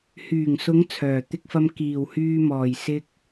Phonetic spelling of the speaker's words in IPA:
h yː˨˩ ŋ s ʊ˨˧ ŋ t͡sʰ œː˨˩ t̪ ɪ˧ k̚ f ɐ˧ m k iː˨˩ w h yː˧ m ɔː˨˩ j s ɪ˥ k̚

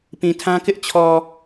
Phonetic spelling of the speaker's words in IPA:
p ĩ˨ tʰ ã˦ k ɪ˦ ʔ t͡ɕʰ ɔ˨

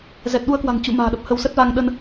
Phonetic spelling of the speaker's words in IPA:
z ɛ˨˩ t̚ ɗ u˧ ə̯ k w a̤˨˩ ŋ t͡ɕ ṵ˧˨ m a̤ː˨˩ ɗ ə˨˩ p̚ h ə˧ w s ə˦˥ t̚ v a˧ ŋ ɗ ə˧ n

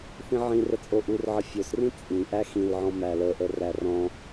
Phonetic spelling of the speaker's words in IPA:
θ ĩ ʕ ĩ r ə t͡sʼ o ʔ u r ʕ ə fʲ o s r ĩ t͡sʼ ĩ ʔ æ x ĩ l ʕ ɔ̃ m æ l ə ʔ ə r æ r ɔ̃

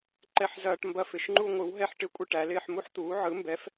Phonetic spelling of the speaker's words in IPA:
ǃ ɛ˥ ħ z ɐː˥ ʈ m b ɐ˥ f ɪ˨˥ ʃ ŋ͡ǃ u˥ ŋʷ ɯ˨˥ w ɦ ɛ˥ ħ ʈ ɪ˥ kʷʼ ɪ˥ ʈ æ˨˥ l ɪː˥ ħ m u˥ ħ t̪ uː˨˥ ʕ ɯ˨˥ m b ɛ˨˥ f

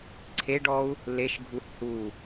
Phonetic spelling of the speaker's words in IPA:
ǀʰ e ɖ ɔ u̯ | l e ʃ ɡʱ u h u

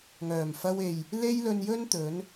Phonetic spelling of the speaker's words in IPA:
ŋ œː˨˩ m f ɐ˧ w e˨ j | l e˥ j l ɵ˧ n j ɵ˥ n t̪ ɵ˨˥ n

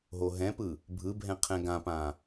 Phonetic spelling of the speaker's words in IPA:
ɦ o ɦ ɛ̃ p ɯ | bʱ ɯ bʱ ɛ̃ qʰ ɛ̃ ɡ ã p ã

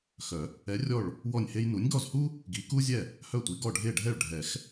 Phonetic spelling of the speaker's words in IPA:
x œ˨˩˦ | ɛ˨˥ rʲ ɔ˥˩ ɭ | w ɔ˥˩ nʲ h e˥ j n u˨˥ nʲ ɡ ɔ˥˩ z h u˥ | ɡ i˨˥ k u˥ zʲ ɛ˥˩ | h œ˥˩ tʷ i˨˥ ɡ ɔ˥˩ ɖʱ e˥˩ ɖʱ ɛ˥˩ ɭ ɖʱ ɛ˨˩˦ x

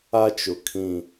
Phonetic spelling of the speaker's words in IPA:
a˦ t͡ʃ ʊ˨ kʰ ĩ˦˨

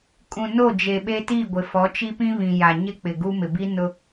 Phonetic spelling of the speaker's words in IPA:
kʼ ũ˨ n o˦˨ d͡ʒ e˨ ɓ e˦ t i˦˨ ɡʷ ɪ˨ f ɔ˨˦ t͡ʃ i˦ p ĩ˦ β ĩ˨ j a˨ ɲ ɪ˦ k͡p ɪ˨ ɡ u˦ m ɪ˨ b i˦ n ʊ˦

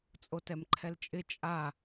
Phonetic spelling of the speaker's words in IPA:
t͡sʼ o t ɛ m ǃʰ ɛ l t͡ʃʼ ɪ t͡ʃʼ a

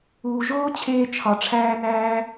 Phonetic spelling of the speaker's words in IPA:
uː˩ ʒ oː˥ t͡ɕʰ eː˧ t͡ʃʰ ɒ˩ ʈ͡ʂʰ æː˧ n æː˧

